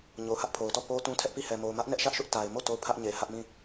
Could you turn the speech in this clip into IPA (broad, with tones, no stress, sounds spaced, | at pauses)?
ɲ o˦˨ ʊ̯ h ä˦ ʔ pʰ o˨ ʊ̯ t ɔ˦˨ p o˦ t ũ˦ tʰ ɛ˦ ʔ p i˦˨ h ɛ˨ m o˨ ʊ̯ m ä˦ ʔ n ɛ˦ ʔ ʃ ä˦ ʔ ʃ ʊ˦ ʔ t a˨ ɪ̯ m o˦˨ t o˦˨ ʊ̯ pʰ ä˦ ʔ ɲ e˨ h ä˦ ʔ m ĩ˦˨